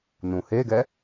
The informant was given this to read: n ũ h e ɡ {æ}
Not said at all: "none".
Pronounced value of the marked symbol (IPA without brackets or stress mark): ɛ